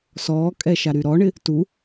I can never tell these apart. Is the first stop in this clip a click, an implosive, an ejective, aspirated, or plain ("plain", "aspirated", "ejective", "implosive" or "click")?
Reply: ejective